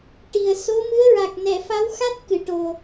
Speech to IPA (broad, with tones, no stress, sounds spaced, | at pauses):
ʈ i˨˩ ə̯ s o˧˥ m ɨ˧˥ ə̯ ɹ a˨˩ k̚ n ɛ˨˩˨ f a˧˥ w x a˦˥ t̚ k ɨ˨˩˨ ʈ o˨˩